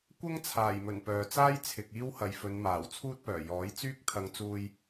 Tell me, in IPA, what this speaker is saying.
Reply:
kʷ ɐ˥ ŋ t͡sʰ aː˨˩ j m ɵ˨˩ n p œː˨ t͡s aː˥ j t͡sʰ ɪ˨ k̚ iː˥ w h ɐ˨ j f ɵ˨˧ n m aː˨˩ w t͡sʰ uː˥ t̚ p œː˨˩ j ɔː˨˥ j t͡s yː˥ k̚ t̪ʰ ɐ˧ ŋ t͡s uː˧ j

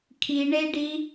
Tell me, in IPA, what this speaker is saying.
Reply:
kʰ i ɳ e ɖ i

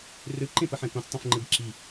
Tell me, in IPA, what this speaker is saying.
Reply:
r ø ǃ ẽ p ə ħ ɛ̃ k õ s tˤ õ f ŋ͡ǃ ɘ b ǁ i

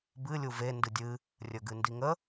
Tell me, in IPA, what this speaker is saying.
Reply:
b ɨ lʲ u v e n d ɨ dʲ ɨ | rʲ ɵ ɡ ɨ n d i ŋ ə

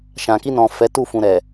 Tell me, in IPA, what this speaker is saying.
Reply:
ʃ ã˨ k i˧ n ɔ̃˨ f ɛ˨˦ t u˦˨ f ũ˨ ɾ ɛ˨

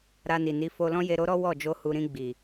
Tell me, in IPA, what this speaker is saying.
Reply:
ɾ a˧ n i˨ n i˨˦ f o˧ l ɔ̃˦ j e˧ ɾ o˦ ɾ ɔ˦ w ɔ˦˨ d͡ʒ o˧ h u˧ ɾ ĩ˧ ɡ͡b i˨

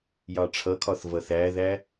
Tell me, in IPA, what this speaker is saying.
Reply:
j ɑ ʈ͡ʂʰ ʌ kʰ ɒ θ v ʌ θ æ ð æ

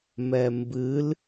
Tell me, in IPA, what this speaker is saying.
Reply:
m ɛ m b ɨ l

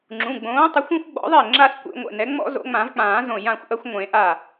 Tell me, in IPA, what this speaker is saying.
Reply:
ŋ͡ǁ ũ˩˧˩ ɡ͡b õː˩˥ tˤ ɛ˩˥ xʷ ẽ˦ xʷ ɡ͡b ɔ̰˨˩˦ ðˤ e˧˩ ŋ͡ǁ a˦ s kʷ ḛ˨˩˦ ŋʷ ɛ̰˩˧˩ n ɛ˩˥ ŋ͡m ɔ̰˦ z o̰˨˩˦ ŋ͡m ã˨˩˦ v k͡p ãː˨˩˦ z õ˧˩ j ã˥˩ xʷ ʔ ɐ˦ xʷ ŋʷ ẽ˨˩˦ ʔ a˧˩

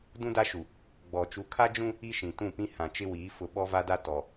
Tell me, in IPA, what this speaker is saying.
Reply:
d ũ˦ d a˦ ʃ u˨ | ɡ͡b ɔ˨ t͡ʃ u˨ kʰ a˦ d͡ʒ ũ˦ | i˦ ʃ ĩ˨ t ũ˦˨ p ĩ˦ h ã˨ t͡ʃ ɪ˦ w iː˨˦ f ʊ˨ ɓ ɔ˦ v a˦ d a˦ t ɔ˨

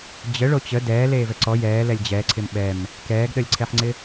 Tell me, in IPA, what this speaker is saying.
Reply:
d͡ʑ ə ɭ o t͡ɕ ə d ɛː l eː v ɛ ǀ ɔ j ɛː l ɛ lʲ d͡ʑ ɛː ǀʰ ɪ m ɓ ɛ m | k ɛː ɡ ɗ ə lʲ ǀʰ ɛ ħ ŋ͡ǀ ɪ

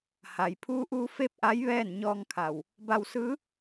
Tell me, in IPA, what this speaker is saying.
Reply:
h a˩ j pʰ uː˧˥ ʔ uː˧ f e˥˨ p̚ ʔ a˧˥ j ʋ ɛː˥˨ n ɲ ɔː˧ ŋ kʰ a˩ w | b a˧ w s ɯː˧˥

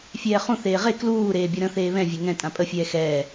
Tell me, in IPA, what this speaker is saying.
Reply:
fʲ ɛː χ ũ θ eː ʁ e k l uː ɾ eː bʲ u ɾ ə̃ θ eː β ɛ̃ vʲ ɛ ŋ ɛ̃ tʼ ã pʼ ə fʲ ɛː x ɛː

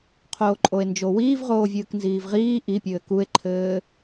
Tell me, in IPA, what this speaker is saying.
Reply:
qʰ oː ǃʼ o e̯ n d͡ʒ o w iː v ʁ oː vʲ ɨː k n z iː v ʁ iː ʔ i pʲ ɘː k u e̯ ǃʰ ɘː

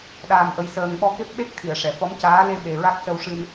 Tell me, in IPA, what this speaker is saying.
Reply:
ɗ aː˨˩ m ʔ ə˨˩ j s əː˨˩ ŋ ɓ ɔ˧ k e˦˥ p̚ ɓ e˦˥ k̚ t̪ʰ i˨˩˨ ə̯ ʂ ɛ˨˩˨ f ɔ˧˥ m c aː˧˥ l e˧ ɓ e˨˩ ɹ a˦˥ k̚ s ə˧ w ʂ ɨ˧ n

